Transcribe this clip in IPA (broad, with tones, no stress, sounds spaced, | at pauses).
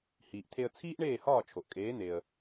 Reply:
h iː˩ ʔ t̪ʰ e˧ ə̯ t͡sʰ iː˥ ʔ ɳ eː˥˩ h ɒː˥˩ t͡ʃʰ o˩ ʔ kʼ eː˩˥ n̪ e˩ ə̯